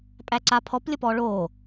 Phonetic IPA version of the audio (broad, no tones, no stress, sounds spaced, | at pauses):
pʼ æ ǀ a pʰ ɔ p lʲ ə p ɔː ɭ oː